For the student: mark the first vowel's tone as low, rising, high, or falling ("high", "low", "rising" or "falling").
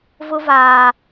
high